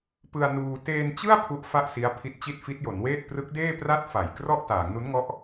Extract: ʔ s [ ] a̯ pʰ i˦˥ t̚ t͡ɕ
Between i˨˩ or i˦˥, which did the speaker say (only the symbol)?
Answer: i˦˥